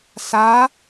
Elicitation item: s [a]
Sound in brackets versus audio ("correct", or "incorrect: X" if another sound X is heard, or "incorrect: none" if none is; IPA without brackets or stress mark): correct